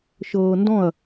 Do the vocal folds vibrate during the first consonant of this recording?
no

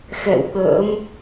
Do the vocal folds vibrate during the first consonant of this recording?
no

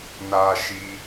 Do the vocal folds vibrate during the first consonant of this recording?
yes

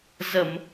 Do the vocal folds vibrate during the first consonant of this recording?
yes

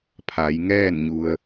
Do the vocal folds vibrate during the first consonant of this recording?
no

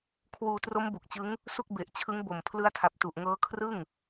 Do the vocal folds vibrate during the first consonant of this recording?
no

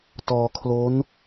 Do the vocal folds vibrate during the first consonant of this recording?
no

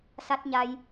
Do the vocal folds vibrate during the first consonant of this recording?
no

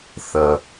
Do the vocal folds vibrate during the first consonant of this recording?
no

